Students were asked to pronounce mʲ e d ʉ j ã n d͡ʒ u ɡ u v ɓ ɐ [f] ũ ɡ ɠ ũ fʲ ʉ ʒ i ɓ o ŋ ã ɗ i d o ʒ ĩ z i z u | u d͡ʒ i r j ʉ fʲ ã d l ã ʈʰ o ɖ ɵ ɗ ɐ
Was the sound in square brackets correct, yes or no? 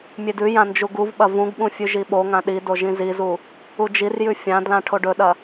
no